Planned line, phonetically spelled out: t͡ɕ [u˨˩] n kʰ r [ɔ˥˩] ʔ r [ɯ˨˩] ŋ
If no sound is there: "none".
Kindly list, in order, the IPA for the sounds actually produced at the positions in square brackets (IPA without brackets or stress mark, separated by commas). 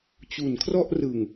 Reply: u˩˦, ɔ˥˩, ɯ˨˩